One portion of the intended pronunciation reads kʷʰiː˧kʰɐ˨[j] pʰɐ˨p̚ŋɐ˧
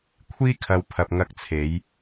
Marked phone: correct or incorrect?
incorrect: w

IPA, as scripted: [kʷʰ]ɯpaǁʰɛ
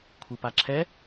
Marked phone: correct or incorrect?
correct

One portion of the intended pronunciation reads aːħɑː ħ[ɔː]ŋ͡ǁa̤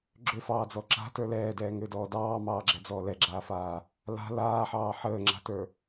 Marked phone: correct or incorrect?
incorrect: əː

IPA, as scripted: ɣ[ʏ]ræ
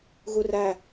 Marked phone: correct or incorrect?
incorrect: u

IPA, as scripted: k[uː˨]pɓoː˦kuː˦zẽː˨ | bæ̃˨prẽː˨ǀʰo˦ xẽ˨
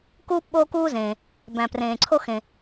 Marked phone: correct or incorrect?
incorrect: uː˦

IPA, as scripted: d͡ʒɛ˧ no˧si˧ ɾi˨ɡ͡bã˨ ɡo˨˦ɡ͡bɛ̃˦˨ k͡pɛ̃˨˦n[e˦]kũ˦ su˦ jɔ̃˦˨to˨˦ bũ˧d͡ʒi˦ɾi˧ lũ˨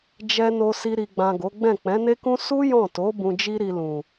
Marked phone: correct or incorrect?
correct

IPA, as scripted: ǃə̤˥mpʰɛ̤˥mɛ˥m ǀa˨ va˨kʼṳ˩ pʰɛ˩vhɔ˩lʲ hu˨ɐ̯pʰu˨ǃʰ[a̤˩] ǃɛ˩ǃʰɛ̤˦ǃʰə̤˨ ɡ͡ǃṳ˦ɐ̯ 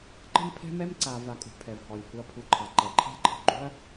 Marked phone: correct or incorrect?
incorrect: a˩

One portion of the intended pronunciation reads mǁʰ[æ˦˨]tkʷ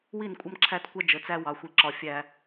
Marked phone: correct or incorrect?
correct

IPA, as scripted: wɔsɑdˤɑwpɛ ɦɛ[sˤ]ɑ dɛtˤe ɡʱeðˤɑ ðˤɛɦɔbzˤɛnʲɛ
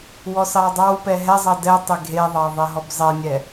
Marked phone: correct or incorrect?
incorrect: zˤ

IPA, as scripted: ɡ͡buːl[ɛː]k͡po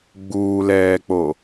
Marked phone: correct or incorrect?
correct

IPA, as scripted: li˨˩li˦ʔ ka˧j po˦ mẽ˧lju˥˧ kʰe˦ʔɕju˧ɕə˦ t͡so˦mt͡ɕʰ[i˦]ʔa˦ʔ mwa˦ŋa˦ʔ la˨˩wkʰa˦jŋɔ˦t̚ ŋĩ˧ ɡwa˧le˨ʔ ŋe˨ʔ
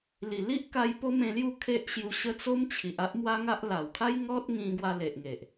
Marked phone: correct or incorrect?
incorrect: i˨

